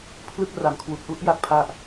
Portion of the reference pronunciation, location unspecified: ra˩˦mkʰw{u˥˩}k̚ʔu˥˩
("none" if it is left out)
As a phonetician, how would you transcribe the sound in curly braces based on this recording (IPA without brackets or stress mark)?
u˨˩